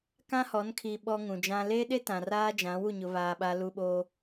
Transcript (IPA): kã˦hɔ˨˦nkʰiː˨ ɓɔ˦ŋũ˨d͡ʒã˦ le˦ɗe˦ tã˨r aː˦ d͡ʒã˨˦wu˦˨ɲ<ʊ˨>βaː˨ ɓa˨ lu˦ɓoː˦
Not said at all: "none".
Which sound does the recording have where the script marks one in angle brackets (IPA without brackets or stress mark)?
ʊ˨